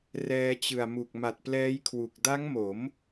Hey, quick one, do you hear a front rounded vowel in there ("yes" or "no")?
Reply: no